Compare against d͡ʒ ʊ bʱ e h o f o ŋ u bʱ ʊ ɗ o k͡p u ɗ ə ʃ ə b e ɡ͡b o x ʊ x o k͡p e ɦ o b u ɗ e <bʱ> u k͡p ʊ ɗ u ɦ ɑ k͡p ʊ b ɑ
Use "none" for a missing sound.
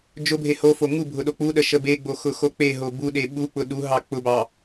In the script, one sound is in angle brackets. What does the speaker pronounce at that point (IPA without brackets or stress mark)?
ɓ